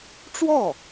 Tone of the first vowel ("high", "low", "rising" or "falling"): falling